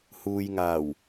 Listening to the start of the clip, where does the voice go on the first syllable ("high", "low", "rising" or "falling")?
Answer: low